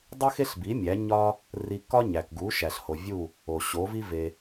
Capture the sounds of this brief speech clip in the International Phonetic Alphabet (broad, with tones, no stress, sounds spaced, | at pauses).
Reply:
dˤ i˥ x e˥ ɬ b i˩˥ mʲ æ˩˥ ɲ ɒ˥ | r i˧ k ɒ˥ ɲ æ˩ k ɡ u˩˥ ʃ æ˩ ɬ h o˩ vʲ u˥˩ | o˩ ɕ o˩˥ v i˥ v e˩